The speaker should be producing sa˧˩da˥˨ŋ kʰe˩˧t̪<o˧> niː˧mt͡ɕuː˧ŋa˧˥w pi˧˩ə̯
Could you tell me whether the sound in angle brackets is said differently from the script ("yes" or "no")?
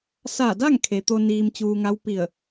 no